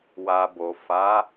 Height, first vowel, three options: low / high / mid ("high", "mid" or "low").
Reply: low